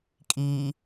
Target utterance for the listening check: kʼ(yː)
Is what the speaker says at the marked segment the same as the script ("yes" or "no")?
no